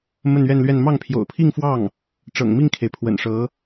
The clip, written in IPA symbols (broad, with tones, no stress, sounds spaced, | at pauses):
m ə˥˧ n ɥ ɛ˥˧ n l ɥ ɛ˥˧ n m ɑ˥˩ ŋ pʰ j o̰˨˩ ʊ̯ pʰ i˥˧ ŋ f w ɑ˥˩ ŋ | ʈ͡ʂ ɤ̰˨˩ ŋ m i˥˩ ŋ kʰ e˩ ɪ̯ pʰ w ə̰˨˩ n ʂ ɤ˧˥